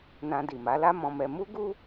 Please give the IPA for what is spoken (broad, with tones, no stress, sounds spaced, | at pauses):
n ã˧ d i˨ m a˨˦ l a˦ m ɔ̃˧ m ɛ˧ m u˦ ɡ u˦